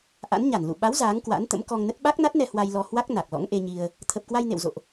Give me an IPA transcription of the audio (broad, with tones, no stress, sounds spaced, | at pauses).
ʔ a̰˧˥ n ɲ a˧˩ n l ṵ˧˨ ɓ a˨˦ w z aː˨˦ ŋ k w a̰˧˥ n t̪ ə̰˧˥ m k ɔ˧ ŋ n ə˦˥ t̚ ɓ a˦˥ k̚ n a˦˥ t̚ n ɛ˧ h w a˧ j l ɔ˧ h w a˦˥ k̚ n a˨˩ k̚ l ɔ̰˧˥ ŋ ʔ e˧ ɲ i˧ ə̯ | t̪ʰ ə˨˩ p̚ k w a˧ j n ḛ˧˨ w z o̰˧˨ ʔ